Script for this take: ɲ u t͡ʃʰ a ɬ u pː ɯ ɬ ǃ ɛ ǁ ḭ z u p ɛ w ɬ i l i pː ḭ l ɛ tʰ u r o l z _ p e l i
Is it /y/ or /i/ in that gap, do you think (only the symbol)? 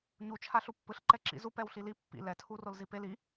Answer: i